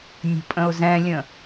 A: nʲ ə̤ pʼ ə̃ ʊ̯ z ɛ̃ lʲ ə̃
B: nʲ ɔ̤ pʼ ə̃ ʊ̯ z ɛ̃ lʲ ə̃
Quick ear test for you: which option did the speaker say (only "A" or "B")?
A